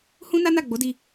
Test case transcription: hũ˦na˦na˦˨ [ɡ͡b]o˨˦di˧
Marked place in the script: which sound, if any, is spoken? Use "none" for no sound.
ɡ͡b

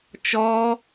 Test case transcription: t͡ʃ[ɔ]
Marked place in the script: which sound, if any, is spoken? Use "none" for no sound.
ɔ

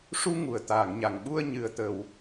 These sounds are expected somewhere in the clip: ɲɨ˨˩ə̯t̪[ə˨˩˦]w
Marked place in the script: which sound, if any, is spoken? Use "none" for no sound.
ə˨˩˨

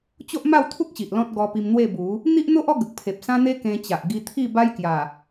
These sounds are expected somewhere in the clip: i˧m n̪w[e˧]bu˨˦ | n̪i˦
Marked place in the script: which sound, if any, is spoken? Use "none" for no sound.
e˥˧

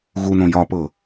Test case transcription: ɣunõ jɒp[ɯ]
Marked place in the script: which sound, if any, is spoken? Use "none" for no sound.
ɤ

